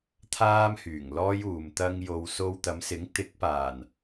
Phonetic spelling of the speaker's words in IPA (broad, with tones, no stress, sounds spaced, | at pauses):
t̪ʰ aː˥ m h yː˨˩ ŋ l ɔː˥ j uː˨ m t̪ ɐ˧ ŋ j o˨ w s o˧ w t̪ ɐ˨˧ m s ɪ˨˥ ŋ t̪ ɪ˨˥ k̚ p aː˨˩ n